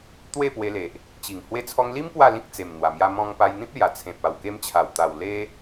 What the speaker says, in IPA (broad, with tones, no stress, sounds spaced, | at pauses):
t̪ w e˥˧ p w e˧ l e˨ ʔ | t͡ɕ i˨˩ ŋ h w e˧ t͡sʰ ɔ˧ ŋ l i˦ m p w a˥˧ l ĩ˦ k̚ t͡s e˨˩ m n̪ w a˨˩ m j a˧ m ɔ̃˧ ŋ p a˧ j n̪ ĩ˦ p̚ l j a˨˩ t͡sʰ ẽ˨ p̚ a˨˩ w k e˧ m t͡ɕʰ a˨˩ w t̪ a˨˩ w l e˦